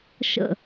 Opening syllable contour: low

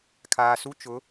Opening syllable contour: low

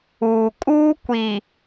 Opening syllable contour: low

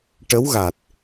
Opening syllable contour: rising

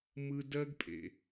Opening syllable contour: high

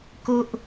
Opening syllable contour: high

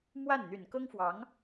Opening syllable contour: falling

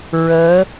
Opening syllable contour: rising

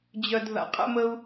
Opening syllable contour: low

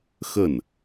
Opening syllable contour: falling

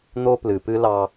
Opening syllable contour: high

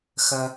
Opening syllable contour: high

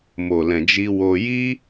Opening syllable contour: low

